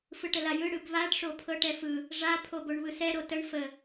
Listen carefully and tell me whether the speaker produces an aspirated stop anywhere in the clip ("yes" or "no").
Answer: yes